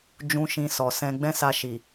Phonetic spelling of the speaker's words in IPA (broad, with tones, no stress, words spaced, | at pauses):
d͡ʒũ˧ ʃĩ˧sɔ˨sɛ̃˧ ɡ͡bɛ̃˦sa˧ʃi˨